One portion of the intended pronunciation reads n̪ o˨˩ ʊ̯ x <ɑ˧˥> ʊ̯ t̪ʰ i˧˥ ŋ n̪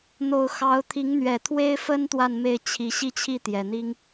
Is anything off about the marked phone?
no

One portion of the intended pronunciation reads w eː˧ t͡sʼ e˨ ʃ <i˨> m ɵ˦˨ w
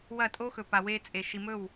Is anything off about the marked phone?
no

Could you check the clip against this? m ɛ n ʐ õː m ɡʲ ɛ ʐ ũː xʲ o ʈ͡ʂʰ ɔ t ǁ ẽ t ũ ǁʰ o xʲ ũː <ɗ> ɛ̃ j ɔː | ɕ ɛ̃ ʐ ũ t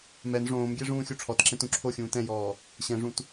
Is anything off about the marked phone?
yes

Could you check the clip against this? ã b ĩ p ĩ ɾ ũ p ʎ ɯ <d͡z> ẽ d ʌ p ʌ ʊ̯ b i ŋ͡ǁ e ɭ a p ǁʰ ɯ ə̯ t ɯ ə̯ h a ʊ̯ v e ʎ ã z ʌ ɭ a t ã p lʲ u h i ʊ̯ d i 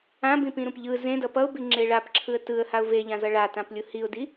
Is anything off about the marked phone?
yes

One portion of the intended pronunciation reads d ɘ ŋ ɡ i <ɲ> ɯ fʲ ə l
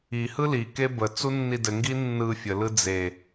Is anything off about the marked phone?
yes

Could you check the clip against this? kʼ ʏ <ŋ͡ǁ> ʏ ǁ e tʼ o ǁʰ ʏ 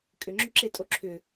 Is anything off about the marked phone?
no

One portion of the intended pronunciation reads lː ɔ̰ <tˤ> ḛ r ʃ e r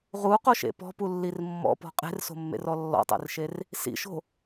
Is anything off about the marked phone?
no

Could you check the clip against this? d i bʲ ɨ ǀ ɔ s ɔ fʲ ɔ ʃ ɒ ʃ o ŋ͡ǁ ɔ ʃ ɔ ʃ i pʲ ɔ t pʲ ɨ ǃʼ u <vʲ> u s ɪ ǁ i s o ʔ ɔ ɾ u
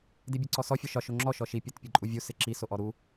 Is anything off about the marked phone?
no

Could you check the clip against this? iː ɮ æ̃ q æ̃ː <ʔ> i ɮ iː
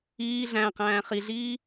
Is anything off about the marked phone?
yes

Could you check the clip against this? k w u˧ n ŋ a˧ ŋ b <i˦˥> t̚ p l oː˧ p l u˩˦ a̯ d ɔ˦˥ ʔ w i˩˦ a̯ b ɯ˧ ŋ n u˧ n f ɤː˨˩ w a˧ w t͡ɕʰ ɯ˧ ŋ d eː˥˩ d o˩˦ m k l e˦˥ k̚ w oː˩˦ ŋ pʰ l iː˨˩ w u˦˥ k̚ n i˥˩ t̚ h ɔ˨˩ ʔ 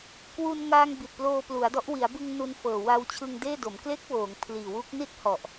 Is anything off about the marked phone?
yes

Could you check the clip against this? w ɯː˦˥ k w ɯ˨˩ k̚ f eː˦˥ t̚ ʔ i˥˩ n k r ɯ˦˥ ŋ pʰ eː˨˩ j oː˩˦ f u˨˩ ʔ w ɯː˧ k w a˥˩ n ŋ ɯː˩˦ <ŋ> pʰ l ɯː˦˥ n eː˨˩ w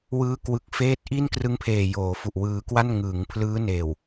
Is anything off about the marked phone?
no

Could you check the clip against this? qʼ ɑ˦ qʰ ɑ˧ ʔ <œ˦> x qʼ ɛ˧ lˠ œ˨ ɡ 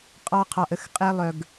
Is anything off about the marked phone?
yes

